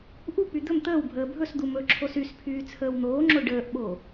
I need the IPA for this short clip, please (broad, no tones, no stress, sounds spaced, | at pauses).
ʔ u k͡p y d̪ ɵ m t̪ əː w bʱ əː bʱ ɵ s d̪ u m ɵ ǁʰ o s y s pʰ yː t͡sʰ əː w n̪ oː ŋ͡ǁ o ɖ əː ʔ ɓ o